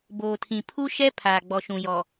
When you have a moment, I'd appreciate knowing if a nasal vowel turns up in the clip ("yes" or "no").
yes